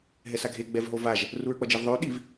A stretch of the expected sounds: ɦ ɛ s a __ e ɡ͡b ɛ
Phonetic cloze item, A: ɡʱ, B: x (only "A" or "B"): A